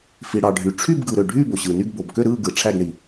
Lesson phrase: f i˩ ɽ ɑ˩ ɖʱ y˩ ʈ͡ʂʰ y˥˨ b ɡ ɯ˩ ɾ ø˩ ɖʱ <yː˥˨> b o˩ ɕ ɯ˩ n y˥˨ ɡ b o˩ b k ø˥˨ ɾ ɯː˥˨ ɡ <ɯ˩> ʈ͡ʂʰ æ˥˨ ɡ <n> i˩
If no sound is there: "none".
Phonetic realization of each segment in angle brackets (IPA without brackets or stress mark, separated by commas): yː˥˨, ɯ˩, ɳ